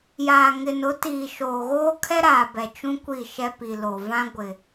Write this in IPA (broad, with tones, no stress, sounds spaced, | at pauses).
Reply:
j aː˨ ŋ ɪ˨ n ʊ˨˦ t iː˨ ʃ oː˨ ɣ oː˦ kʰ ɛ˦ ɾ aː˨ b ɛ˨ t͡ʃ ũ˦ kʷ i˦˨ ʃ ɛ˦ p i˨ l o˨ v ã˦ ɡʷ ɪ˨